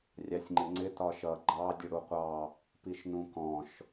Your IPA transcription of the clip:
rʲ ɑ sʲ ŋ͡ǃ ɪ ŋ͡ǀ ɪ t ɒ ʃ ʌ ɡ͡ǃ ɑ dʲ ʊ ɽ u qʷ ɑ | p i ʃ n ũ k ɔ̃ ʃ

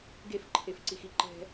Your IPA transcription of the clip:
ɡ e f ǃʰ e f ǀ i x i ǃ ɛ̤

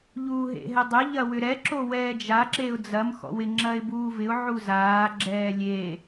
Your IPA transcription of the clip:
ʎ uː ɦ ḛ ɦ ɛ dˤ ɛ ʎ ɐ w ʏ ɾ ɛ ǁ o w ɛː d͡ʒ a ǁ e ʊ̯ d͡z ɐ m x ɔ̰ w ɪ ŋ͡ǁ ɐ ɪ̯ b uː v ɪ ʊ̯ ʕ u z aː ɡ͡ǁ ɛː lʲ e

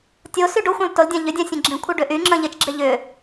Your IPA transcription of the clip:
tʲ o s y ɖ o xʷ ẽ lˠ t o l dʲ ã ʎ ʏ dʲ ã sʲ ẽ ɡ͡ǁ ĩ kʷʰ i ɖ ʏ ʔ y ŋ͡ǁ ə̃ ʎ ɪ t͡ʃ ɡ͡ǁ ɪ ʎ ʏ

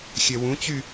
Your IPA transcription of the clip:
xʲ ɛ w ũ t͡ɕ y

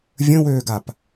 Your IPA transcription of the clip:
vʲ ə̃ w øː ɡ a p

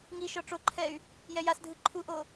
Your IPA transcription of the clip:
ŋ i ʃ ɔ ʈ͡ʂ o ǃʰ ɛ y̯ | j ɛ j a s dʱ ɯ ǃʰ u ʔ o

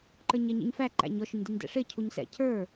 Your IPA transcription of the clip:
ǃ ə˞ ɲ ɛ ɲ ḭ ɲ f æ ǃ æ̰ ɲ ɔ ʃ ʊ ɲ d i ɲ d ɛ̰ ʂ ɪ cʰ u ɲ s ɛ̰ cʰ ə˞

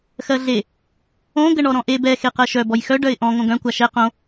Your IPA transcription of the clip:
x ɜ ɮ e | õ ɡ ə ɳ ɔ ɾ ɔ̃ ʔ e b ɛ x e q ɜ ʃ œ b ɔ j x œ ɖ œ ɪ̯ ʔ ɔ̃ ŋ õ ɡ œ̃ kʷ a ʃ ɛ q õ

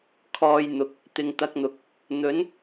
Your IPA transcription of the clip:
kʰ ɔː˧ j n̪ ʊ˨ k̚ | t̪ ɪ˨ ŋ t̪ ɐ˧ k̚ n̪ ʊ˨ k̚ | n̪ ɵ˨˥ n

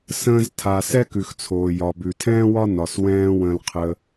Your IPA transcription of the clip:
s ə̃ː˧ z tʰ a˩ s ɛ˥ k ʉ˩ x t͡sʰ oː˩ j ɒ˩ b ʉ˩ tʰ ɛ̃ː˥ w ɒ˥ n ɒ˩ s w ɛ̃ː˧ w ə̃˧ l qʰ ə˧

